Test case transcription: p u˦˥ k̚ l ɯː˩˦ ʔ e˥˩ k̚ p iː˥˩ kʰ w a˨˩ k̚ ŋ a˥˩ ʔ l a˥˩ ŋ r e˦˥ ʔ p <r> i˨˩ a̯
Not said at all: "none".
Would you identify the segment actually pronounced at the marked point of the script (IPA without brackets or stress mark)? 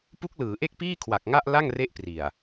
r